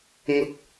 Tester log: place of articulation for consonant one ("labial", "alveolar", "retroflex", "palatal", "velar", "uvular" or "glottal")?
velar